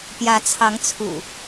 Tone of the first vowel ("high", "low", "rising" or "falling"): rising